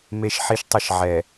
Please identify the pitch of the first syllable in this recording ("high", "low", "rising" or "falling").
low